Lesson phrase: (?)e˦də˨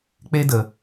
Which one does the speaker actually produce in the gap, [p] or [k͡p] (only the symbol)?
k͡p